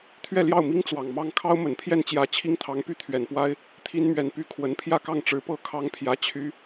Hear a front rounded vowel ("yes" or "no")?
yes